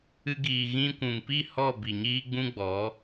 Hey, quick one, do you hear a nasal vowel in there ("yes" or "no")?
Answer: yes